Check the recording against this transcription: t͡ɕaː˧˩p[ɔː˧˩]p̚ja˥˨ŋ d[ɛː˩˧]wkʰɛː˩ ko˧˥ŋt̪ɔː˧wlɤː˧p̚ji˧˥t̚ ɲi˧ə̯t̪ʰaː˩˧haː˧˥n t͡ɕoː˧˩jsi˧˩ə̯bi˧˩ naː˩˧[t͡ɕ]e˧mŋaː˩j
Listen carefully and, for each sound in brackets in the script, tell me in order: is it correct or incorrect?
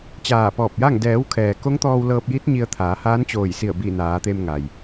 correct, correct, incorrect: t̪

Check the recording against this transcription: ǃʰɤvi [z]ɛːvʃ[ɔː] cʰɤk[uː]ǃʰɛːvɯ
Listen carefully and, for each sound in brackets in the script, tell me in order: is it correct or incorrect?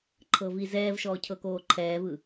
correct, correct, incorrect: oː

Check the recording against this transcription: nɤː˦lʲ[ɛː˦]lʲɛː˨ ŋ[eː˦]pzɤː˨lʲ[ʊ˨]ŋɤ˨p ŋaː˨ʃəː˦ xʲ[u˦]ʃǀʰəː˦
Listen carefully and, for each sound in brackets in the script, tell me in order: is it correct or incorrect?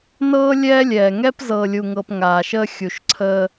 correct, incorrect: ɛː˦, incorrect: u˨, incorrect: u˨

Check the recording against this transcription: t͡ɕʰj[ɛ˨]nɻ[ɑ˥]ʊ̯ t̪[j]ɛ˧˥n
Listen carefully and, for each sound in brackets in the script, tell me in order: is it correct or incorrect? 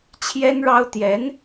incorrect: ɛ˥, correct, correct

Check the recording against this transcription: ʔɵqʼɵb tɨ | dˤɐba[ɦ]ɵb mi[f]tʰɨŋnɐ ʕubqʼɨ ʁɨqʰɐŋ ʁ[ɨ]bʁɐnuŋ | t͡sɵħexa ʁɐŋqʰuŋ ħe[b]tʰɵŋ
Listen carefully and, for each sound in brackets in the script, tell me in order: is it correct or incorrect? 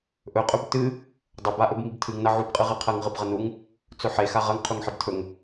incorrect: ʔ, incorrect: b, correct, correct

